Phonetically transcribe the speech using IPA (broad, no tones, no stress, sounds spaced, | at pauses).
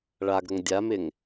ɭ a ɡ ɾ ə ŋ dʲ a m ɪ ŋ